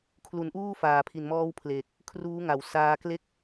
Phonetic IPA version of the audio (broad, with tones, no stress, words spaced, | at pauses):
kʰlu˩˦nʔuː˥˩ faː˨˩pʰi˨˩nmɔː˦˥w pʰle˨˩k̚ | kʰruː˦˥ŋa˩˦wsaː˧ kle˥˩k̚